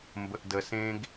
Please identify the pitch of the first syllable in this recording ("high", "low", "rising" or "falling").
low